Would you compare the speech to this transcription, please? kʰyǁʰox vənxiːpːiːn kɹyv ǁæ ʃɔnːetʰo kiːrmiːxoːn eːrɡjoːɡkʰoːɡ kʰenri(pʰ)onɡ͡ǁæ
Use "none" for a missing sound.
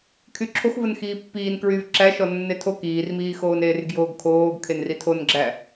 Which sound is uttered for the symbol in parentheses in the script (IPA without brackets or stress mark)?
tʰ